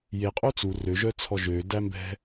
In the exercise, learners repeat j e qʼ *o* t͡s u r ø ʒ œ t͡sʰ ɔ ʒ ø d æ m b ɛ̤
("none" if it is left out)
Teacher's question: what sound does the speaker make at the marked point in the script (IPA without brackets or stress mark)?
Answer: o